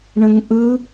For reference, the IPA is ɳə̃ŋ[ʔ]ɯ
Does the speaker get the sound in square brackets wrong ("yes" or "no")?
no